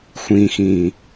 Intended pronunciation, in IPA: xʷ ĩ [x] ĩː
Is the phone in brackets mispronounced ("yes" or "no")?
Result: no